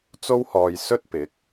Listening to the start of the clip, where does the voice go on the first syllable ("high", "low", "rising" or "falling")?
high